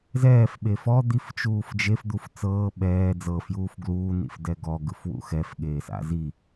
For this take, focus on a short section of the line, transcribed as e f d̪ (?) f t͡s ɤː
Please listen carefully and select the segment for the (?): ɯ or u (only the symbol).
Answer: u